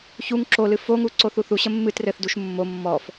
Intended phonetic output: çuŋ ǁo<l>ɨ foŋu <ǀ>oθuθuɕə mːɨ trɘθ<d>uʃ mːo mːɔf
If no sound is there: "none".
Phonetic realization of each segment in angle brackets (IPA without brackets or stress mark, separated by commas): l, ǀ, d